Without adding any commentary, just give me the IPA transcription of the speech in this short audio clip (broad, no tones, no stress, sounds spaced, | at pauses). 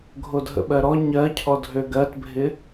ɡʱ o dʱ ə̰ ɓ ɜ ɾ ɔ ɲ ɜ cʰ ɔ dʱ ø ɡ ɜ t bʱ ɪ